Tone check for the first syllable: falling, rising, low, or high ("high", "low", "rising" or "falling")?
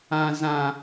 high